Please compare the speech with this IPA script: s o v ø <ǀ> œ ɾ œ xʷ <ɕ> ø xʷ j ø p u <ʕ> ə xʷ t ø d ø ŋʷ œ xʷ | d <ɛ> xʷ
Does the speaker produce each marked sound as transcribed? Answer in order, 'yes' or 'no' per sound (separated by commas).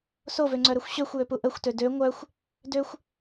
no, yes, no, no